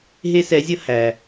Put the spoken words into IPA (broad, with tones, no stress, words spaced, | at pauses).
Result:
ɦe˥sɛ˧˥zʲʌ˥ hæ˩